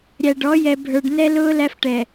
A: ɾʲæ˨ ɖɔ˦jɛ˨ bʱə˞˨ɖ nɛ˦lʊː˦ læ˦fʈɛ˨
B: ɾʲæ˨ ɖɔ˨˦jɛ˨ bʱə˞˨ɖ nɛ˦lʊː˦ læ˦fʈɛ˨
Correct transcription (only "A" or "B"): B